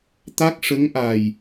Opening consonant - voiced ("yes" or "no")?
no